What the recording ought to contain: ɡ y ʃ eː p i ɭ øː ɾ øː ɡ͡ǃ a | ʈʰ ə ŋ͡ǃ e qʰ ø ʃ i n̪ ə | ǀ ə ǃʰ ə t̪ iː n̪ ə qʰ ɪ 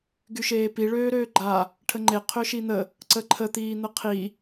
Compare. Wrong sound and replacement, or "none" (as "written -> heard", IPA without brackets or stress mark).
ɪ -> i